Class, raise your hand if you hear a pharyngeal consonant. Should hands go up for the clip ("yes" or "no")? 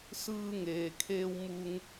no